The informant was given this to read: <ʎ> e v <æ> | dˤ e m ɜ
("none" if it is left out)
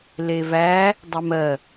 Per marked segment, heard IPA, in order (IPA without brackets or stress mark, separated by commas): l, æ